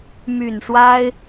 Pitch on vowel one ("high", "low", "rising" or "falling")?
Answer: low